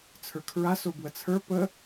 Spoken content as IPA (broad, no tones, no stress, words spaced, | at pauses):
t͡sʰə˞kʰɹa sobwət͡sʰə˞ pə